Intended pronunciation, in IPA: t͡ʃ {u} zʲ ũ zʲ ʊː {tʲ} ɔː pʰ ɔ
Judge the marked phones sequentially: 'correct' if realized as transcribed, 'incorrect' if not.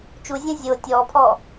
correct, correct

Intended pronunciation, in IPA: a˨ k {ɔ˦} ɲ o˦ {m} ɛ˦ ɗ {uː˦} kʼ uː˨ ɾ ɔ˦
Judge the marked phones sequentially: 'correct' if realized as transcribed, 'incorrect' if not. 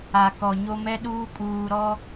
incorrect: ɔ˨, correct, correct

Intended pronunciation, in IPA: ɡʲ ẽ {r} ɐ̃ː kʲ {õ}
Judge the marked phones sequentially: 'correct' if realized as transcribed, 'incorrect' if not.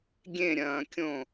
incorrect: ɾʲ, correct

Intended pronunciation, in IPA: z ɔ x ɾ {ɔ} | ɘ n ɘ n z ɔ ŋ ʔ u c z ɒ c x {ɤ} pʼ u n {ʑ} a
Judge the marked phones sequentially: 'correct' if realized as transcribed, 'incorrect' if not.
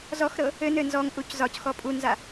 incorrect: ɤ, incorrect: ɔ, incorrect: z

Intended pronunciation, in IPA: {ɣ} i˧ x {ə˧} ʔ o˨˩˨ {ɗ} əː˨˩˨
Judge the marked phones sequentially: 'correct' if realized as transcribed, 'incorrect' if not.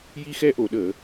incorrect: j, incorrect: ɛ˧, correct

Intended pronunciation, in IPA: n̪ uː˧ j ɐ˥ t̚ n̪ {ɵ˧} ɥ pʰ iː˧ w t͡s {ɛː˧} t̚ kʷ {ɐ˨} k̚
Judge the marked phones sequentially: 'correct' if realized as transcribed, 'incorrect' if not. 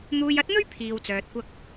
incorrect: ɵ˥, incorrect: œː˧, incorrect: ɐ˥

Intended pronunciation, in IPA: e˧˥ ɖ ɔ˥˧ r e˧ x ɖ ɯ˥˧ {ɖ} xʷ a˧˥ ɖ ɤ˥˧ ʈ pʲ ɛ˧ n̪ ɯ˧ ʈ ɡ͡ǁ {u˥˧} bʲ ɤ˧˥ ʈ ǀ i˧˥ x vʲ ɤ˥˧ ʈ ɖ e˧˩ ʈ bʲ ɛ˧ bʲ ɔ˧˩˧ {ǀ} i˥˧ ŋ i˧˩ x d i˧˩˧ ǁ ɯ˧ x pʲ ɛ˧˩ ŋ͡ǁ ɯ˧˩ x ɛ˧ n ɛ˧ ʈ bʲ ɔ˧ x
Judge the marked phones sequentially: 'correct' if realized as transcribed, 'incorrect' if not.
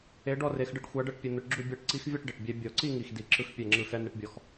incorrect: ʈ, correct, correct

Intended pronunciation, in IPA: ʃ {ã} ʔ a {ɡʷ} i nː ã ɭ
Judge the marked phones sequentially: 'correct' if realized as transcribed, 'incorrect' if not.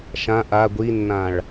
correct, correct

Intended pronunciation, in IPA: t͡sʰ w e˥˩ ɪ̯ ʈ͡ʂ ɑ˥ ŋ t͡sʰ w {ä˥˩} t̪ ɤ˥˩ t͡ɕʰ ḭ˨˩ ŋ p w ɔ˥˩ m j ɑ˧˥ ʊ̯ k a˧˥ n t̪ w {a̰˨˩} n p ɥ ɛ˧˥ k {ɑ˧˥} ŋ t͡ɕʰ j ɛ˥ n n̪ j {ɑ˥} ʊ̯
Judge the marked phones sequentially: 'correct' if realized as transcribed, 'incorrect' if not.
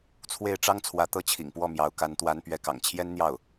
incorrect: ä˧˥, incorrect: a˧˥, incorrect: ɑ̰˨˩, incorrect: ɑ˥˩

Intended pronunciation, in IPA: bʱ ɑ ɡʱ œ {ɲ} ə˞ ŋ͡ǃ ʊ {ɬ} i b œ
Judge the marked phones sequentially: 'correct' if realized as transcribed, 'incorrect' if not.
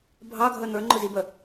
incorrect: n̪, incorrect: z

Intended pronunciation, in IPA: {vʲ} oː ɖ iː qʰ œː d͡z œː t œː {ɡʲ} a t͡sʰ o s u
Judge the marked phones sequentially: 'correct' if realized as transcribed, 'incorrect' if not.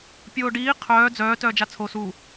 incorrect: pʲ, incorrect: d͡ʒ

